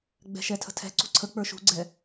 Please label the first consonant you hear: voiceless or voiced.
voiced